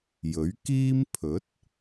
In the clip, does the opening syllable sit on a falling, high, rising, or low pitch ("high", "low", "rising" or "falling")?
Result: rising